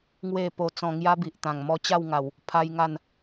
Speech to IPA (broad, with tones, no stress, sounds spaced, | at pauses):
ŋ w e˥˧ p o˧ t͡s ɔ̃˧ ŋ j a˦ b i˨ ʔ t̪ ã˨˩ ŋ m ɔ˧ t͡ɕ a˥˧ w ŋ a˨˩ w | pʰ a˦ j ŋ a˥˧ n